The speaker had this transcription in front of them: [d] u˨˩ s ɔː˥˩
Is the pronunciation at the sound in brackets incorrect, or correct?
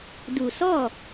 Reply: correct